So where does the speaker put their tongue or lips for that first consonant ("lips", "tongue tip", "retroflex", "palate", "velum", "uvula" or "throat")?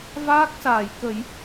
lips